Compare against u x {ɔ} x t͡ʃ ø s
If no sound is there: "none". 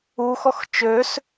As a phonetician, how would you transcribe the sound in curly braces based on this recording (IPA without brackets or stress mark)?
ɔ